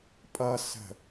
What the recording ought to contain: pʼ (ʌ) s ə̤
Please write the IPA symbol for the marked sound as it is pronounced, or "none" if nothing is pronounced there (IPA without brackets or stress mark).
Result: ʌ